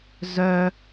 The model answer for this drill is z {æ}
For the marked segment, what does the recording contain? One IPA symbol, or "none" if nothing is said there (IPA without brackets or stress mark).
œ